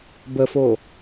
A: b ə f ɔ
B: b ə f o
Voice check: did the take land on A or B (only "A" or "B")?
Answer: B